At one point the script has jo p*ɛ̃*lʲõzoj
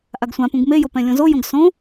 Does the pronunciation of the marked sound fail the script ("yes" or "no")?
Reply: no